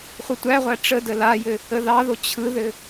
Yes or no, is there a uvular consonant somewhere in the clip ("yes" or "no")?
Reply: yes